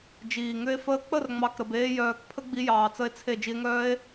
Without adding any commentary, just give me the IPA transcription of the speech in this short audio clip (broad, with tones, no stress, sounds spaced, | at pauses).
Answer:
d͡ʒ iː˨ ŋ ʏ˦ e̯ f əː˧ k͡p ə˦˨ r ŋ͡m ɑ˨ k ɾ ə˨ b eː˧ j œː˨ k pʰ ə˦ ɡ͡b i˧ j ɑː˨ t͡s ə˧ e̯ t͡sʰ e˦˨ d͡ʒ i˧ e̯ ŋ œː˦ e̯